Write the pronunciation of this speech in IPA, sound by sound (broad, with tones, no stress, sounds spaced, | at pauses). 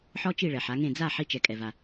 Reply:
ħ ɔ˥ t͡ʃ i˥˩ ɭ ɛ˩ ħ a˩˥ ŋ ẽ˥˩ d͡z a˥˩ ħ i˧ t͡ʃ ɛ˩ kʼ ɛ˩ v a˩